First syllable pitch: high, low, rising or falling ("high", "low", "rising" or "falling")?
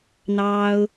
high